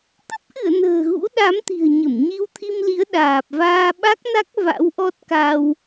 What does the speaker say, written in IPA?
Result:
t̪ ə˦˥ p̚ ʔ ɨ˧˩ ə̯ n ə̤ː˨˩ ɣ ṵ˧˥ ɗ a˨˦ m t̪ i̤˨˩ ə̯ ɲ ə˧˩ m ɲ i˧ w t̪ʰ i˧ m l i˨˦ ə̯ ɗ aː˨˩ p̚ v aː˧ ɓ a˦˥ k̚ n a˦˥ k̚ v a̰˧˥ w ʔ ɔ˦˥ t̚ k a˧ w

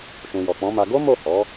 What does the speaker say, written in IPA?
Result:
ʃ ũ˨ j ɔ˨ k͡p ɔ̃˨˦ m a˧ ɡ o˦ m o˦˨ h ɔ˨˦

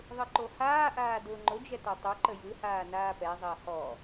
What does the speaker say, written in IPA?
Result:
ðˤ ɯ ǃ o h aː ʔ aː d ʊː ŋ͡ǃ ʊ d͡ʒ ɛ t a tˤ o ǃ ə j ɯ h aː n aː p ɛ zˤ əː h ɔ

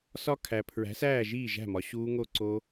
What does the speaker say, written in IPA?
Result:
s ɒ˦˥ kʰ æ˨ pʰ ɹ æ̤˨˥ s æː˥˨ ʒ iː˥˨ ʒ æ̤˥˨ m ɒ˨ ɕ uː˦˥ ŋ o˥˨ ǀ o˦˥

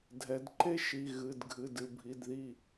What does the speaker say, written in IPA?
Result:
dʱ ɛ˩˧ d ǃ e˥ ʃ i˩˧˩ ɣ ɨ˩˧˩ d ɡʱ ɨ˩˧˩ d ɨ˧˩ bʱ i˩˧˩ d ð i˧˩

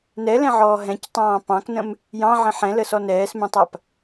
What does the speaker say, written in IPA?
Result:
n ɛ l ɛ̃ ʕ ɔː ɦ ɛ̃ c tˤ ɑ̃ː p ɑ̃ k n ə̃ m | j ɑ̃ ʕ ə̃ ħ ɛ̃ l ə s ɔ n ɛː s m ɛ̃ tˤ a p

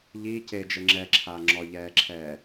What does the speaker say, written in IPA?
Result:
ʎ iː c e d͡ʒ ɘ ŋ͡ǁ ɛ ǁʰ a ŋ͡ǁ ɔ ʎ ɛː ǁʰ ɛː

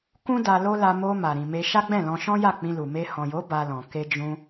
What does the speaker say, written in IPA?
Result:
k ũ˦ d a˧ l o˦ l a˧ m o˧ m a˨ ɾ ĩ˨ m e˧ ʃ a˦ ɡ͡b ɛ̃˦˨ l ɔ̃˧ ʃ ɔ̃˦ j a˦˨ k͡p ĩ˧ l u˨ m e˧ h ɔ̃˨ j o˨˦ b a˧ l ɔ̃˨ k e˧ d͡ʒ ũ˧

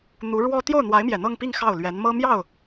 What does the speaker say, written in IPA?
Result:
n̪ u˧˥ ɻ w ɔ˥ t̪ j o˥˩ ʊ̯ n̪ w a˧˥ ɪ̯ m j ɛ˨˩ n̪ ɤ˥˧ ŋ p i˥˧ ŋ x ɑ˥˩ ʊ̯ l ɥ ɛ˧˥ n m ɤ˥ m j ɑ˥˩ ʊ̯

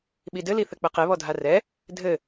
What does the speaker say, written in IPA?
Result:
ɓ i d ɘ l i θ ɘ k͡p ɘ q e β ɔ dʱ a r ɛ | dʱ ɘ

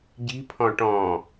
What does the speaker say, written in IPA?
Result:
ɟ i̤ pʰ ɔ̃ ʈ ɔ̃

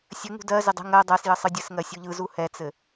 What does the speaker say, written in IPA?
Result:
sʲ ɘ ŋ ṳ d ɜ z ɪ dˤ ə̤ ŋ ɜ dˤ ɜ s j ə sˤ ɯ dʲ ɘ s ŋ ɜ sʲ u ʎ ɯ z u h ɛ t͡s ɘ

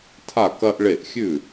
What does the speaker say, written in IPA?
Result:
tʰ a˧˩ k ɐ˧ ʔ ɭ e˧˩ ʔ xʲ ʉ˥˩

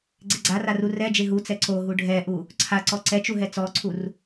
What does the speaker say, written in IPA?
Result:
ɡ͡ǀ e ɡ͡ǀ a r a r u r ɛ d͡ʒ e ɦ u t͡s ɛ ǀ o ɦ u ɖʱ ɛ ʔ u | ǀʰ a ǀ ɔ ǀ ɛ t͡ʃ u ɦ ɛ t͡s ɔ ǀʰ u r

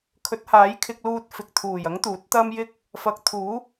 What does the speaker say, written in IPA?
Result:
kʰ ɵ˨˥ t̚ h aː˨˥ j kʰ ɪ˧ k̚ l uː˧ t̚ f ɪ˨ k̚ t̪ʰ uː˨˩ j ɐ˨˥ ŋ t̪ uː˨˥ t̚ t̪ ɐ˥ m j ɪ˥ k̚ | f ɐ˨˥ k̚ t̪ʰ uː˨˥

